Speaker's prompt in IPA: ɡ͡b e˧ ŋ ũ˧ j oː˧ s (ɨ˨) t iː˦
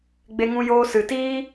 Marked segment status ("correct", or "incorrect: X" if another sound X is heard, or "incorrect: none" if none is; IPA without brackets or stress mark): correct